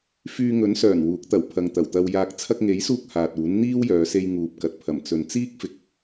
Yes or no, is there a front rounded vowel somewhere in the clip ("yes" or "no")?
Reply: yes